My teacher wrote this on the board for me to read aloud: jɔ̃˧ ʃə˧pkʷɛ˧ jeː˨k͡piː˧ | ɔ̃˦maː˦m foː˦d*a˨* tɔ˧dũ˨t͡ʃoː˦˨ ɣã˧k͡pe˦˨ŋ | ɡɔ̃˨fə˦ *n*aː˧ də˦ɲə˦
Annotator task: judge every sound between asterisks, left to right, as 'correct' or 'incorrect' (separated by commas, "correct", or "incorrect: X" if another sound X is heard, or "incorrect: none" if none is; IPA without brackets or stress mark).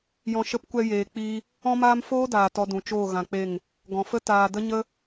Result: incorrect: aː˨, incorrect: t